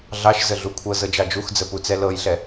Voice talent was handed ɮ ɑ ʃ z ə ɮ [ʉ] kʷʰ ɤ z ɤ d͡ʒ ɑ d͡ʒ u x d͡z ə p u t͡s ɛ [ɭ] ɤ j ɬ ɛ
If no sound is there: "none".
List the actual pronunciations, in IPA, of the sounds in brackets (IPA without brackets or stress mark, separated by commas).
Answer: u, l